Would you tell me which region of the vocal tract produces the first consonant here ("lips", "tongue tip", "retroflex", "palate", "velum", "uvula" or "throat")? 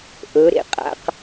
throat